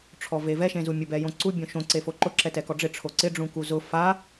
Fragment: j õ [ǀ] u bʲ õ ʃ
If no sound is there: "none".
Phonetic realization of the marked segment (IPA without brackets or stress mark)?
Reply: ǀ